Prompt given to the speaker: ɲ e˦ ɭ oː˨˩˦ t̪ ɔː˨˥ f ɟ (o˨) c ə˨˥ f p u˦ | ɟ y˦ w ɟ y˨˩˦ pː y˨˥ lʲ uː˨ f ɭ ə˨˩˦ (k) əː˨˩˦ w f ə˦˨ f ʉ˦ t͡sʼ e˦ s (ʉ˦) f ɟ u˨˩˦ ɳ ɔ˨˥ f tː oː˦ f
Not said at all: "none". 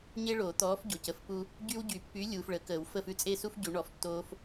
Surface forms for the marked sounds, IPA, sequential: o˨, k, u˦

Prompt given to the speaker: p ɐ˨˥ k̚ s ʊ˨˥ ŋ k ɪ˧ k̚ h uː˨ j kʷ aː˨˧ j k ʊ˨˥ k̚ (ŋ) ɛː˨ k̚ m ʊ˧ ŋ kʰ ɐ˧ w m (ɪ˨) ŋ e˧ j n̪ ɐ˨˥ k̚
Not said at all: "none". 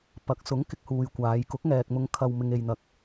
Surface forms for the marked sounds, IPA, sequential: ŋ, ɪ˧

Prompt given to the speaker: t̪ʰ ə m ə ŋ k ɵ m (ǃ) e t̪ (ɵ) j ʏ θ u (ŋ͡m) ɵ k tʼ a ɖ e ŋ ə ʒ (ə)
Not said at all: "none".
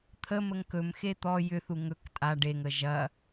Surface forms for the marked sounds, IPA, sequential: x, ɔ, ŋ, ɐ

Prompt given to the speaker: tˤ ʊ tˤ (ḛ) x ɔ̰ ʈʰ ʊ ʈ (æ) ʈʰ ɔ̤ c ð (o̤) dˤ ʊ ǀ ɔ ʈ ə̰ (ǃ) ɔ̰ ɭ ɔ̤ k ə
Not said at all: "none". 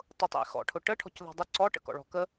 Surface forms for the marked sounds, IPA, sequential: ḛ, ə, ɔ̤, k

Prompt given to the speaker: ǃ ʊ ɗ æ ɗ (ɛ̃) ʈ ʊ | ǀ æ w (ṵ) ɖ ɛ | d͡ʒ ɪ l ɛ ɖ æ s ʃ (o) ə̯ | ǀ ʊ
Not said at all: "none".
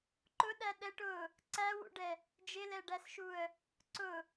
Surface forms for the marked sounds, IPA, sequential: ɛ, ṵ, u

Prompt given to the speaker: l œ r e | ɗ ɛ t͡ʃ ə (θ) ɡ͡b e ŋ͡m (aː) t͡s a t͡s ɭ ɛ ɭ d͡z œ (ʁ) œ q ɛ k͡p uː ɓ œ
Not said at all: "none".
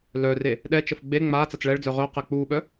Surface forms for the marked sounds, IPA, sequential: f, aː, ʁ

